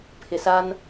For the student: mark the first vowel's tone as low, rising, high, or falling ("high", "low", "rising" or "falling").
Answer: low